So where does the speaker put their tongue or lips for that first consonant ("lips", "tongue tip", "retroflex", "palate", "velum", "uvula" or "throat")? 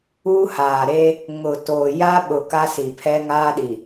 throat